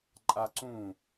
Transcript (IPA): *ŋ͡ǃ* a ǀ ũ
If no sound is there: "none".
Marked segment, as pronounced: ǃʼ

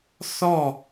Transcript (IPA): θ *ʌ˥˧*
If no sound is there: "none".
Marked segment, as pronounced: ɔ˥˧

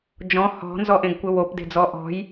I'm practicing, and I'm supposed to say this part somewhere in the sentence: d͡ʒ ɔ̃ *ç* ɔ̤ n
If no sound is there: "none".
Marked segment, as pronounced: h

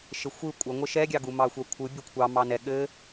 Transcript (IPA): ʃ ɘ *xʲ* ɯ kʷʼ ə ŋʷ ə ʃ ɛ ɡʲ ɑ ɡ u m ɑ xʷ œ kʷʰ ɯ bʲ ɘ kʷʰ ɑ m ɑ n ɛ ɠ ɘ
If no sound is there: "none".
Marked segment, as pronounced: xʷ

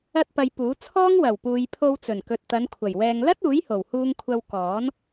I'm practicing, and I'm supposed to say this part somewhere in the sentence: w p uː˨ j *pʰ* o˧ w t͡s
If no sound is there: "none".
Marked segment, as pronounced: pʰ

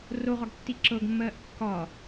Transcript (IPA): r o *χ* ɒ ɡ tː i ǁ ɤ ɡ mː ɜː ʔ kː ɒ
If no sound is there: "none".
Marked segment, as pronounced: ʁ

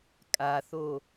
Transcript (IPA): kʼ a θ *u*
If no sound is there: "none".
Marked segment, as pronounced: o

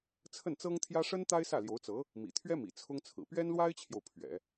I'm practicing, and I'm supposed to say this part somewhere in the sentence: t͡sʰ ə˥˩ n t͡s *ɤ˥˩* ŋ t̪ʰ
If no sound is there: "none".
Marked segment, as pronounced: ɤ˥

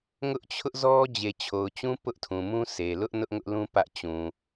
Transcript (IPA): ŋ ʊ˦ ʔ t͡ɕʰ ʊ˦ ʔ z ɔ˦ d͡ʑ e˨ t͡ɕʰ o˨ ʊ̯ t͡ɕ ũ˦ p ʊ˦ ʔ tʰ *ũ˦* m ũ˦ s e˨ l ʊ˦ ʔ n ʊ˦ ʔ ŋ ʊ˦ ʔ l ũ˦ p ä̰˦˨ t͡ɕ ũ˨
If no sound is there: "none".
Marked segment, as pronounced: ũ˨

